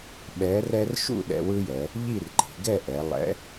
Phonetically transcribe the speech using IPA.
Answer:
ɓɛ˨˥rɛ˦r ʃṵ˥˨ɗɛ̰˩˧wɯ˦jɛ˩˧ | ʎi˥˨rǃi̤˩˧ ɡɛ˥˨ʔɛ˩˧ lˠɛ̰˨˥

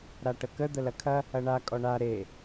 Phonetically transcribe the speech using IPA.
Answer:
ɾaʈəkə d̪əlɐkʰɐ | ɐɳa kʼɔɳa ɾe

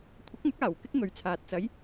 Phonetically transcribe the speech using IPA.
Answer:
kʷʰɐ˨˥k̚ŋɐ˨˥k̚aː˨˩w kɪ˥k̚ŋɵ˨ɥt͡sʰaː˨t̚ t͡sɐ˨˧j

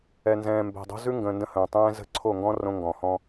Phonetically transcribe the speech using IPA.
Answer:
ɛ˨nzɛ̃ː˨ mbɛ̤˨dˤo̤˦zʉ˦ ŋɡə̃ː˨ ndə̃˦˨hə̃ː˨tˤɛ̃ː˦ zə̤˦˨ ǀʰo˦˨ŋɡɔ̃˦ rõ˦ŋɡɔ̃˨ hɔ̃˦

